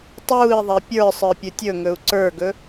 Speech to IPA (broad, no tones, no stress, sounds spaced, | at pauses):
tˤ uː i̯ ðˤ e pʲ ə˞ sˤ ə˞ pʲ ɵ tʲ ɵ ŋ ɵ u̯ ǀ ə˞ ɡ ɵ